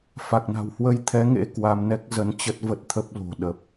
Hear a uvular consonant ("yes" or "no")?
no